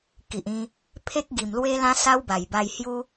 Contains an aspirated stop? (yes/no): yes